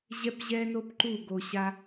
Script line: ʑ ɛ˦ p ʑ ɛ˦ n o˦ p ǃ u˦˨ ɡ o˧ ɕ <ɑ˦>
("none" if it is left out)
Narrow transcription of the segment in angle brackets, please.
a˦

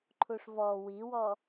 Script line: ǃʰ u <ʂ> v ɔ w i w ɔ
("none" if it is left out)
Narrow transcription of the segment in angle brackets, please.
ʂ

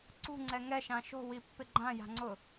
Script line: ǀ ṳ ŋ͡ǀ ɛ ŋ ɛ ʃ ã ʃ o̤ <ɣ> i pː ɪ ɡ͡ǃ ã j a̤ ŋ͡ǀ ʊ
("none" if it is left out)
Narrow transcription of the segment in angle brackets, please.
w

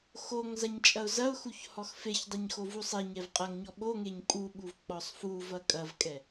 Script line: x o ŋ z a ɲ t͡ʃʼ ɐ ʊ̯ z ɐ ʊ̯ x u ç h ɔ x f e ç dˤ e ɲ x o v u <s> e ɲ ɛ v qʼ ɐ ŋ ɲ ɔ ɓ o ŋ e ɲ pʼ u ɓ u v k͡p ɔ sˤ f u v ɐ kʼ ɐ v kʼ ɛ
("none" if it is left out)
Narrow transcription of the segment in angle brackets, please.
sˤ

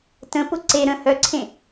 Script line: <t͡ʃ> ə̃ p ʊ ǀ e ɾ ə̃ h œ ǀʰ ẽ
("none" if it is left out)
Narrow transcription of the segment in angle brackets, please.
t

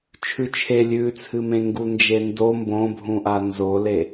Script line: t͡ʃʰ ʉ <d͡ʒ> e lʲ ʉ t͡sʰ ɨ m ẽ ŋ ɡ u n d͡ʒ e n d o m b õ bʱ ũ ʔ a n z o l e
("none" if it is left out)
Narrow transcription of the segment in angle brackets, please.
t͡ʃʰ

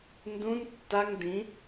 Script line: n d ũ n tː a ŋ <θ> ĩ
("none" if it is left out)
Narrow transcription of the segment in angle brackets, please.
d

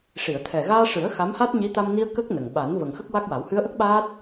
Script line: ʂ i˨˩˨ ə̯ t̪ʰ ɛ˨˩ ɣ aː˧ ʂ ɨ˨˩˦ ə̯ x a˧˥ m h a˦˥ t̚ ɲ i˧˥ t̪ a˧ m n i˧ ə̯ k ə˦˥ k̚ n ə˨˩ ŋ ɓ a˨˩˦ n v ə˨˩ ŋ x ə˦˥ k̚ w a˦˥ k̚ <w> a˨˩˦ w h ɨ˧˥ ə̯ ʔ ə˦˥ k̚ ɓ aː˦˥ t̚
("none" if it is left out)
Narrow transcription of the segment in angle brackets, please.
w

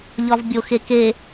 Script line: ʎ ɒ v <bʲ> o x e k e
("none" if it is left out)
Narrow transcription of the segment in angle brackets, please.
bʲ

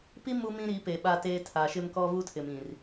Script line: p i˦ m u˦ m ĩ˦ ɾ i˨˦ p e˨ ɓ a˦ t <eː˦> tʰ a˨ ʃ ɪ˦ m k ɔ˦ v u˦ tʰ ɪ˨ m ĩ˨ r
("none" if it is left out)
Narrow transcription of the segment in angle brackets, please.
eː˦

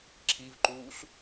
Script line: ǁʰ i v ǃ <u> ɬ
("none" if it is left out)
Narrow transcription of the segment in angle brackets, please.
uː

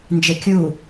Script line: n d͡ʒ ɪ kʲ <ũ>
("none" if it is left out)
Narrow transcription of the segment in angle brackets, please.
u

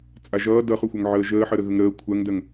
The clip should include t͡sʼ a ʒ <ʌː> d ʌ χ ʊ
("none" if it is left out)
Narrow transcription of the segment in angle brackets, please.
ʌː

